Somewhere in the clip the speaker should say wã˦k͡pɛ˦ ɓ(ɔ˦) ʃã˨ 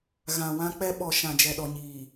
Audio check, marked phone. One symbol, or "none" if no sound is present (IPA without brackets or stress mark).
ɔ˨